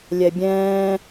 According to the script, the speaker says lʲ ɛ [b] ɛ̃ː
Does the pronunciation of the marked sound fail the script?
yes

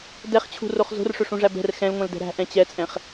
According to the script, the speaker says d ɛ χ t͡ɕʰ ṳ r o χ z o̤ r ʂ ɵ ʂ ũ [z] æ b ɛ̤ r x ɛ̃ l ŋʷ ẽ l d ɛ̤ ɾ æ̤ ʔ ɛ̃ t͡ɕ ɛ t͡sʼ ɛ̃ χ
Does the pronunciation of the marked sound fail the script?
yes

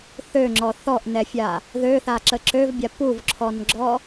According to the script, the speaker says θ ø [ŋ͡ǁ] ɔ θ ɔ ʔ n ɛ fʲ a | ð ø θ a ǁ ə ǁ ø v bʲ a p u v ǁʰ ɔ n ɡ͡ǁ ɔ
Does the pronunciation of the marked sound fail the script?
no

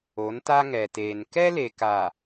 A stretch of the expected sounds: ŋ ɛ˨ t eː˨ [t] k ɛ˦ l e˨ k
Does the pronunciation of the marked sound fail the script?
yes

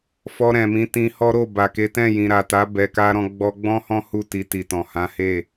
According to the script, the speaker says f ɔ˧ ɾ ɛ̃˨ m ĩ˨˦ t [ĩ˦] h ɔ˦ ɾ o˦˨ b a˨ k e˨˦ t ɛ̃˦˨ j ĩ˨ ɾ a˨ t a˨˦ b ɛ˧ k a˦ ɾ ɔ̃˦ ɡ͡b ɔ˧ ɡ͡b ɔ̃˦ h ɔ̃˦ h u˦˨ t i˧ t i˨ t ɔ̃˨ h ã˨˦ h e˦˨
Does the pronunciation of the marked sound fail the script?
yes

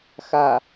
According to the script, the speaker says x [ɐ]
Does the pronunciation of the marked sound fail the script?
yes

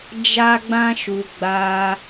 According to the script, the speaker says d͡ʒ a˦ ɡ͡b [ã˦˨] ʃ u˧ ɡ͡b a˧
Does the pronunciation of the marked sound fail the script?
yes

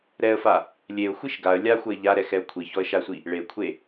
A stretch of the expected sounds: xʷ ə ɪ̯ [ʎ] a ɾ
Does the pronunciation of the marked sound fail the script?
no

